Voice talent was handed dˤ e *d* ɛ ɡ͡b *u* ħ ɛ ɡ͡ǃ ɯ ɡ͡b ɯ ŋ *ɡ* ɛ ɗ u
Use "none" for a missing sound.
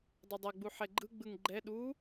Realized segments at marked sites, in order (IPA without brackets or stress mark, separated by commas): dˤ, u, ɡ͡ǃ